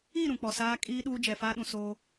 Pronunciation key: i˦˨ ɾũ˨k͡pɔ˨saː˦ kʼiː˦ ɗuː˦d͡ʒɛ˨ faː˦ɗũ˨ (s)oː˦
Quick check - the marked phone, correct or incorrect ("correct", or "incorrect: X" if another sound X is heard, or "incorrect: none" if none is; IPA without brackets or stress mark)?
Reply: correct